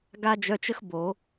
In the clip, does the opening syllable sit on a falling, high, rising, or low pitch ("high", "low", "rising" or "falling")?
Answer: high